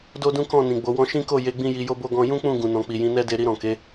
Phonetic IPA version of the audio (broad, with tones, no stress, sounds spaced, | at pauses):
d o˦ d ũ˦ k ɔ̃˦˨ n ĩ˨ ɡ͡b o˨˦ w ɔ̃˦ ʃ ĩ˦ k o˦˨ j e˧ ɡ͡b ĩ˦ j i˧ j o˦ b o˦ ɡ ɔ̃˦ j ũ˦ k͡p ũ˦˨ ɡ ũ˨ n ɔ̃˨ k͡p i˨ j ĩ˨˦ n ɛ˦ d e˧ ɾ i˧ ɾ ɔ̃˨ k e˨˦